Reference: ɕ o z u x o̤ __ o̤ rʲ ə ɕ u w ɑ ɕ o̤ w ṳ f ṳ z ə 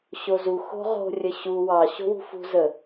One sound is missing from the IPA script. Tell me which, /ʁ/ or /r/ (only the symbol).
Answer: ʁ